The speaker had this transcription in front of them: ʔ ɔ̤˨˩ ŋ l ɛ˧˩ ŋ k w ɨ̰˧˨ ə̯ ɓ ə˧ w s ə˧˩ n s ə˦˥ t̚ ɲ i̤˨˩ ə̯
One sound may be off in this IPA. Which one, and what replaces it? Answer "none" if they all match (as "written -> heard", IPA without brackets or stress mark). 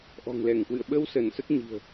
none